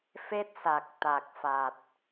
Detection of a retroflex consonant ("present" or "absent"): absent